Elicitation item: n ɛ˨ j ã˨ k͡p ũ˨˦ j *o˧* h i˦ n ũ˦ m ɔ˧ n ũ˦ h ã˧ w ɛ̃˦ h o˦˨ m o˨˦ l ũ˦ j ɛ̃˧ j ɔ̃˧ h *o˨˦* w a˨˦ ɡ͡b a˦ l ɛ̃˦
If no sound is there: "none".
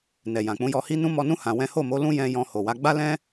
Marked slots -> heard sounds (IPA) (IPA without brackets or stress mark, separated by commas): ɔ˧, o˨